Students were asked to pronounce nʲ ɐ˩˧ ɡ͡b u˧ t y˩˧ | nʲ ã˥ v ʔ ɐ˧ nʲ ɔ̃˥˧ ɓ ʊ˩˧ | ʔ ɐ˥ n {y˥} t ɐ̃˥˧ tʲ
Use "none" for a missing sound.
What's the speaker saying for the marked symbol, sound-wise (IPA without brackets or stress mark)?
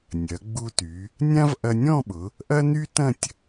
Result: y˥